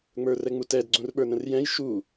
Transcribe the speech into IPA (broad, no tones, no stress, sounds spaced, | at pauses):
ŋ͡m ə˞ r ɛ ŋ͡m u t ɛ d ɡ͡ǀ ũ r ɓ ə˞ n ə̃ r j ɛ̃ j ʃ u